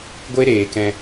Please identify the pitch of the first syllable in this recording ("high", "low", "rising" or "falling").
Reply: high